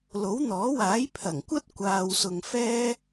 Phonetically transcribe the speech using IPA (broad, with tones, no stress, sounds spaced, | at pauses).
l o˨˥ w n̪ ɔː˨˥ w aː˨˥ j pʰ ɐ˨˩ ŋ kʷ ɐ˥ t̚ kʷ aː˨ w s ʊ˨ ŋ f ɛː˥